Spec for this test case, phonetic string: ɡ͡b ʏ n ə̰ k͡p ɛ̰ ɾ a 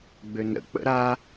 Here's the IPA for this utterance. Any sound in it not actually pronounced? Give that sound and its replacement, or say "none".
ɛ̰ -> ə̰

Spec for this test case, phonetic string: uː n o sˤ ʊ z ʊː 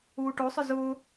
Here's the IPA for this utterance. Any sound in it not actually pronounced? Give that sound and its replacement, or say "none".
n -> ʈ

